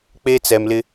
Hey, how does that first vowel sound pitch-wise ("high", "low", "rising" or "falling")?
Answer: high